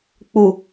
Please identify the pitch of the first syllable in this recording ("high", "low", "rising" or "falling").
low